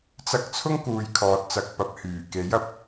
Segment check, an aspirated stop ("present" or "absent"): present